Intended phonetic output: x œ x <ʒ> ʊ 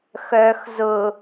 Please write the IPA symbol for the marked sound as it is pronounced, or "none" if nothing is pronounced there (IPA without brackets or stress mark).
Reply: z